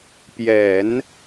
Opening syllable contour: low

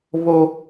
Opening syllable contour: high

